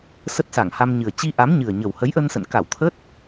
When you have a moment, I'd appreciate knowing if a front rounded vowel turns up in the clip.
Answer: no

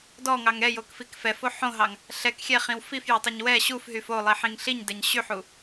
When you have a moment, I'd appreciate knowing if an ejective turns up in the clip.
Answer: no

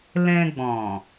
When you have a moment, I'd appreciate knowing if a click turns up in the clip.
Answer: no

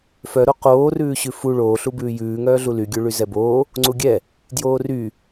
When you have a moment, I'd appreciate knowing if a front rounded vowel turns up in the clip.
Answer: yes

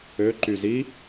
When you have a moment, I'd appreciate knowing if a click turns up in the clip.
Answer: yes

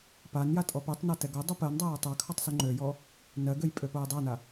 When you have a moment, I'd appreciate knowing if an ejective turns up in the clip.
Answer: yes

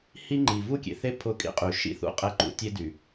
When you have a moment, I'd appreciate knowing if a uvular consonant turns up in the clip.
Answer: yes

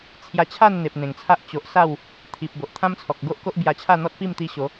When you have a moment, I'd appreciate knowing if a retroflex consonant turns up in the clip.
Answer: no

